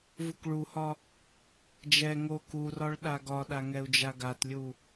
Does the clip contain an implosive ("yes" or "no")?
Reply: yes